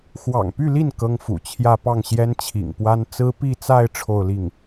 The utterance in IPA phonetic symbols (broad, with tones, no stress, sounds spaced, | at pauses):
x w ɑ̰˨˩ ŋ p y˥˧ l i˥˩ n k ɤ˥ ŋ f ṵ˨˩ t͡ɕʰ j ä˥˧ p ɑ˥˩ ŋ ɕ j ɛ˥ n t͡ɕʰ ḭ˨˩ ŋ p w a˥ n t͡s ɹ̩˥ p i˥˧ t͡s a˥˧ ɪ̯ ʈ͡ʂʰ o˥˧ ʊ̯ l i˥˩ ŋ